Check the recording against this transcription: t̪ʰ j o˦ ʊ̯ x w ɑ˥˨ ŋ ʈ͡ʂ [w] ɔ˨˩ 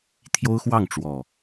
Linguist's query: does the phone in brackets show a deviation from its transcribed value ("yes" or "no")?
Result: no